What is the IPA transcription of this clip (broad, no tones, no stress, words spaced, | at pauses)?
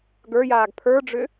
ɡə˞jaːɡ pʰə˞ɖ͡ʐʏ